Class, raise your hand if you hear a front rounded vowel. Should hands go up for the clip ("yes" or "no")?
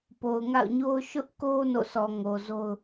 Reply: no